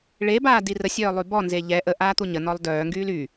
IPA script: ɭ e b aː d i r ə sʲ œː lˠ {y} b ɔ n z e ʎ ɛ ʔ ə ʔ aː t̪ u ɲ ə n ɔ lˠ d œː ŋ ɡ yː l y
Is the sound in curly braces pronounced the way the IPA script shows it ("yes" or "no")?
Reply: yes